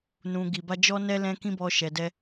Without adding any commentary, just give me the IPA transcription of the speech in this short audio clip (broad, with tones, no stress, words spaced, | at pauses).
nũ˨ ɡi˨ba˧ d͡ʒɔ˧ nɛ˧lɛ̃˧kĩ˧ bɔ˨ ʃɛ˨dɛ˧